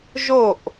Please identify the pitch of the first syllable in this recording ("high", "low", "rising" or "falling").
falling